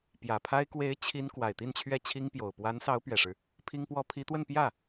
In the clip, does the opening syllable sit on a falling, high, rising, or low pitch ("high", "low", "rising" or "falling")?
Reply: low